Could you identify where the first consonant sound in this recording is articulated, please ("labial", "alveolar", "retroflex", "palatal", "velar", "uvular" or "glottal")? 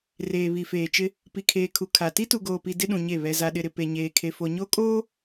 alveolar